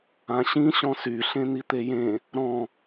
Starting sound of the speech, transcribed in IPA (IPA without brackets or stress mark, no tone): ã